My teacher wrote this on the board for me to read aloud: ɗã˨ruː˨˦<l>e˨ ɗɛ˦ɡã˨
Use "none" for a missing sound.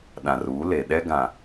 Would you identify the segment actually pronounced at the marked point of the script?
l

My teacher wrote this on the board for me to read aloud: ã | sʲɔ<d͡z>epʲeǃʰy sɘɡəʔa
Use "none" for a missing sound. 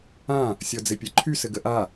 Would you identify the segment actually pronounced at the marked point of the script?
d͡z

